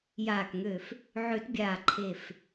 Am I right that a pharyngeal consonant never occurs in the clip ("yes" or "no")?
no